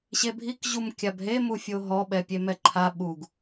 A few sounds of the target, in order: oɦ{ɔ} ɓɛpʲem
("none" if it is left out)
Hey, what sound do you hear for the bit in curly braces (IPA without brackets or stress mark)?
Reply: ɔ